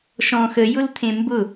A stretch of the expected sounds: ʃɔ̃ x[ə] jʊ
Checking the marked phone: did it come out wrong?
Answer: no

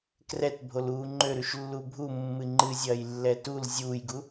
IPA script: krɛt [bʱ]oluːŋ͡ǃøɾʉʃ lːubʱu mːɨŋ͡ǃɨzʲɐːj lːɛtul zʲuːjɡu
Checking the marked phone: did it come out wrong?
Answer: no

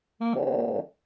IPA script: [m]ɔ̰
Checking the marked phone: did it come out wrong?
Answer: no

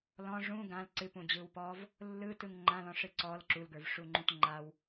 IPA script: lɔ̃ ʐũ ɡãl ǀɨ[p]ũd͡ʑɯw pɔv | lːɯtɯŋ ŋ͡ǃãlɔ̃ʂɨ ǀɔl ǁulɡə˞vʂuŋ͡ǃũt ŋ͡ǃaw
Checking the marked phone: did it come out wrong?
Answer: no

